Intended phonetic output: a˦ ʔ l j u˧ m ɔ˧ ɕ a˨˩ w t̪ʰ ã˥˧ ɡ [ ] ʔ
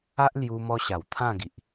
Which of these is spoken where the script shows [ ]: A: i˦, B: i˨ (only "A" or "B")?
B